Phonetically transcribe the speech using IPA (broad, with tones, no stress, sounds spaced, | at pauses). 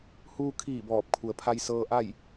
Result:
h uː˧ kʰ iː˧˩ b ɔː˧˩ p̚ kʰ u˩ ə̯ pʰ a˧ j s ɤː˧ ʔ a˥˨ j